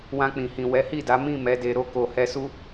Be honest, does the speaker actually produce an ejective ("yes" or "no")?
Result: no